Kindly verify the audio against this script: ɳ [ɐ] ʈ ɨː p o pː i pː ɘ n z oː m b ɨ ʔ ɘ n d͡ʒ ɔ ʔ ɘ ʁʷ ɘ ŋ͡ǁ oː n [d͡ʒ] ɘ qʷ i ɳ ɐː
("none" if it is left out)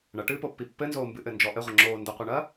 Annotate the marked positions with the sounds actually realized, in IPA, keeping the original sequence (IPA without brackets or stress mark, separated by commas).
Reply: ɐ, d